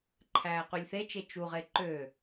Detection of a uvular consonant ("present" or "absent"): present